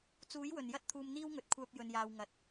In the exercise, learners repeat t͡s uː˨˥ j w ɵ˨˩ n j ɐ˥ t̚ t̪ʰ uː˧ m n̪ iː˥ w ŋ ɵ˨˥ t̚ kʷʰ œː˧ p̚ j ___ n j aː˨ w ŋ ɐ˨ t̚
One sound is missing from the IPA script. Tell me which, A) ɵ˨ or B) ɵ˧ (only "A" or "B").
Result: A